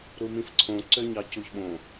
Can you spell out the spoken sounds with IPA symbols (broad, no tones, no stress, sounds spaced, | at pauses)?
ɾ u m ĩ f ǀʰ õ ǀ ø ɲ ɑ c u ç ɓ õ